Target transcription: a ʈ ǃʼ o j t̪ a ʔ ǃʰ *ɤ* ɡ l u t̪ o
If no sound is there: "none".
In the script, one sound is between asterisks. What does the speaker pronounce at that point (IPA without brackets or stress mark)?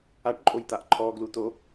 ɔ